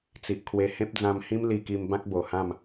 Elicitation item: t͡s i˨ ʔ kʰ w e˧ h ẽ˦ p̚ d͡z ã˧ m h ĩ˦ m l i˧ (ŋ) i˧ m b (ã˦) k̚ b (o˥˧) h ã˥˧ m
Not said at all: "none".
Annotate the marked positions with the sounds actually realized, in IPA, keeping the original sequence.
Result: k, ã˦, o˨˩

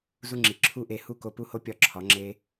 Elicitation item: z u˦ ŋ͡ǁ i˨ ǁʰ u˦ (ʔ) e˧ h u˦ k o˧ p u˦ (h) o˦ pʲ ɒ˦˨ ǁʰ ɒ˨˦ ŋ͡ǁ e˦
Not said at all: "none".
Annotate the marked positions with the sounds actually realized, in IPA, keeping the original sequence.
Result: ʔ, h

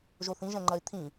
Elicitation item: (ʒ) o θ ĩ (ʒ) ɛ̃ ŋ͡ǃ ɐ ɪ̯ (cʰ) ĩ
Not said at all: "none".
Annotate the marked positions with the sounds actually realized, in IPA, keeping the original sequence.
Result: ʒ, ʒ, t̪ʰ

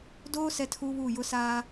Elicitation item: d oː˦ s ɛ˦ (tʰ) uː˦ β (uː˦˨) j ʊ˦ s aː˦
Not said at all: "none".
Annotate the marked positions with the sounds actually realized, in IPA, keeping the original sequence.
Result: tʰ, uː˦˨

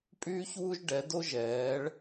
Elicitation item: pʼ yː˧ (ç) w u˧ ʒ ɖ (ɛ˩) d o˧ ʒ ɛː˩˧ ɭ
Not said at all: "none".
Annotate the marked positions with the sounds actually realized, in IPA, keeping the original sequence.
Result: ç, ɛ˩˧

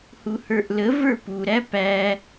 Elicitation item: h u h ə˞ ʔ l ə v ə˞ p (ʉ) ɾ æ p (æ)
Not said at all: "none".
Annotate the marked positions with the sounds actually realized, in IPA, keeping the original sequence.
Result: u, æ

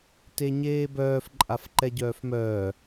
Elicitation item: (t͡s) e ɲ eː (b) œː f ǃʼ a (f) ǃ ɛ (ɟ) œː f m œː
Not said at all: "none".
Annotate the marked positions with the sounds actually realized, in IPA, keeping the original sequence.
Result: t, b, f, ɟ

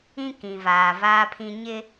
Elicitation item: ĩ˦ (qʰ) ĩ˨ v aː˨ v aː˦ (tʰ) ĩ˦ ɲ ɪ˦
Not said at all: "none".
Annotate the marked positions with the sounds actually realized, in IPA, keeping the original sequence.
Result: k, pʰ

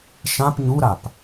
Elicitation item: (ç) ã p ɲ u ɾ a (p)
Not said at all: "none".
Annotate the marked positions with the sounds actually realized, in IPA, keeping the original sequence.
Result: ʃ, p

